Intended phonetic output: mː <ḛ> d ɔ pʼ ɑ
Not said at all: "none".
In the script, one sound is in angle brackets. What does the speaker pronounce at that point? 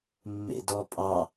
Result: ḛ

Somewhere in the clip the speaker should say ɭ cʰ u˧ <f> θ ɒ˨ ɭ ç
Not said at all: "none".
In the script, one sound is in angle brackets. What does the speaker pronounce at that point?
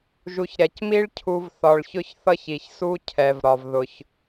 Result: v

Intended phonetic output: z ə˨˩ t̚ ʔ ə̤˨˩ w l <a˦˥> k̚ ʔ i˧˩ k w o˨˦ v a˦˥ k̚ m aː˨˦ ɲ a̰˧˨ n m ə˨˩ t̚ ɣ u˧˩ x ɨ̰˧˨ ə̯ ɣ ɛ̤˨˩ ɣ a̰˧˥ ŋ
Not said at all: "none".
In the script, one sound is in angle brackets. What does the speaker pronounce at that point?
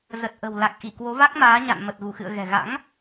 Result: a˨˩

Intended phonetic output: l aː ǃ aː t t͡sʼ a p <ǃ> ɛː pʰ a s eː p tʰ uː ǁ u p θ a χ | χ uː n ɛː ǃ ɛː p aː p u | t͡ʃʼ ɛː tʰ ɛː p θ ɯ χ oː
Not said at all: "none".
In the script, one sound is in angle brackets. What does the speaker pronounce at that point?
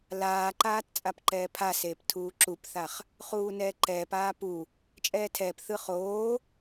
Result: ǃ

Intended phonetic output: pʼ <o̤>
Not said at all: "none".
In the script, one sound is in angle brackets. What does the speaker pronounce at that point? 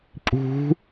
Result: ṳ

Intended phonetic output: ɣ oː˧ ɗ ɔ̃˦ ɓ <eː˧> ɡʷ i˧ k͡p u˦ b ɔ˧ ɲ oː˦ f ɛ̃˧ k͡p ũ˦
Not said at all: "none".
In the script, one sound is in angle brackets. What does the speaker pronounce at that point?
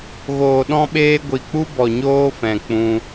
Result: eː˦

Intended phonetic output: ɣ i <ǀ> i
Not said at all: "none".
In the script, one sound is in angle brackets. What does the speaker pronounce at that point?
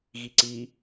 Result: ǀ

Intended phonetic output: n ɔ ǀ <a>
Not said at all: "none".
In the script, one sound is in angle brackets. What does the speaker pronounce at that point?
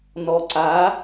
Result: a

